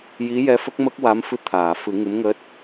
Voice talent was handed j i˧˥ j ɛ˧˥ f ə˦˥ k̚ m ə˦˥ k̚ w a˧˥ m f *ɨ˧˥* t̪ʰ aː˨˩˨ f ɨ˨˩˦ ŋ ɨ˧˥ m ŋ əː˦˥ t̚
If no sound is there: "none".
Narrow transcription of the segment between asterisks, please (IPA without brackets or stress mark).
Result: ɨ˧